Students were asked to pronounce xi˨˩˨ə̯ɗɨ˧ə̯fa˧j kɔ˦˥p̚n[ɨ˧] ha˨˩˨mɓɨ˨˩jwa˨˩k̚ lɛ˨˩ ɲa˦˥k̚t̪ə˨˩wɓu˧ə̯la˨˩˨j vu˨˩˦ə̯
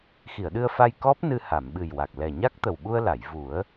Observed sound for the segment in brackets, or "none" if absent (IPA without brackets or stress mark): ɨ˧